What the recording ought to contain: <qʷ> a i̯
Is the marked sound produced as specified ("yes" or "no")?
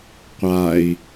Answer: yes